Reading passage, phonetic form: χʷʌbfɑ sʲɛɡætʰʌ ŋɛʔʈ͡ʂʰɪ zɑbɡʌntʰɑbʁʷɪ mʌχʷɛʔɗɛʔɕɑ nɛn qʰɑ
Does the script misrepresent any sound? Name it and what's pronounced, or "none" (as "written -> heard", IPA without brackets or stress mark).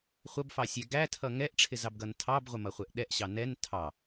qʰ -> tʰ